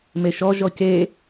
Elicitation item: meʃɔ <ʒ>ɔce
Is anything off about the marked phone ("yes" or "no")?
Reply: no